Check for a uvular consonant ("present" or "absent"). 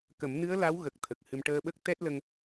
absent